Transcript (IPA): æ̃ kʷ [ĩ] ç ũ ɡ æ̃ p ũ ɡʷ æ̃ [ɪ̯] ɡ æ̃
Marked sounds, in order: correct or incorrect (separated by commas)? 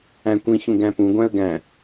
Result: correct, incorrect